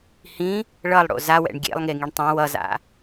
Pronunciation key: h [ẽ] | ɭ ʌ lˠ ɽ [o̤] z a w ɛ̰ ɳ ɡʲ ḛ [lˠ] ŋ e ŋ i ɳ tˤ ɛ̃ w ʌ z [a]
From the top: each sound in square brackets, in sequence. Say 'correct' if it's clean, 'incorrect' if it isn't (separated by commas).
incorrect, incorrect, correct, incorrect